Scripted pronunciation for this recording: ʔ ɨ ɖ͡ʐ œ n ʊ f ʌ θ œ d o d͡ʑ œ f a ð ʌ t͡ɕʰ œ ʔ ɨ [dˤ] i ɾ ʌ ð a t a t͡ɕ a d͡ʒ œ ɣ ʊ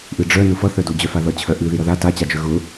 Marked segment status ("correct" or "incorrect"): incorrect